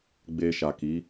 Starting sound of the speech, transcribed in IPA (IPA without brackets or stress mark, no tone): ɡ͡b